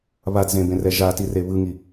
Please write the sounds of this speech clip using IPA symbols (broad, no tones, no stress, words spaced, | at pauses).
βadzẽbẽrɛ ʒati reβɯŋi